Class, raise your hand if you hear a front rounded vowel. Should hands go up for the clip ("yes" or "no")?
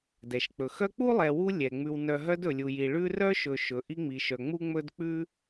yes